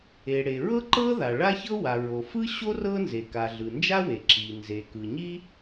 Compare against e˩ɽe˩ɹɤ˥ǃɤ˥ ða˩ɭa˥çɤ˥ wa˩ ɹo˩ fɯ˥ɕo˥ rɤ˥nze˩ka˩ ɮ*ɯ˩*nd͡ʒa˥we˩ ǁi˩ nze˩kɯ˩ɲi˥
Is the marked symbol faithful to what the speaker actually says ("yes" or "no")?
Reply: yes